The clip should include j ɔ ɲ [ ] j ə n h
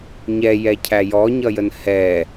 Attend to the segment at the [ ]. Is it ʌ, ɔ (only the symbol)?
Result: ʌ